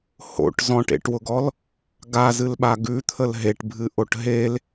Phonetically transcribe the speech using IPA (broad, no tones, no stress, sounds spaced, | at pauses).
h o̰ ʈ z ɔ̃ ʈ ḛ ʈ w ʊ ɡ ɔ l | ɡ a z ɨ l ɓ a ɡ ʉ t̪ʰ ə l ɦ e ʈ bʱ ɨ ʔ o ʈ ɦ e l